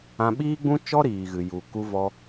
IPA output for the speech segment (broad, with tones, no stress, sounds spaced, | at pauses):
ã˧ ɓ iː˦ ɡ͡b ũ˦ t͡ʃ ɔ˦ ɾ iː˨ ɣ ɨ˨ j u˨ k u˧ v ɔ˧